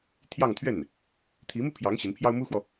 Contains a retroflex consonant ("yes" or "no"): no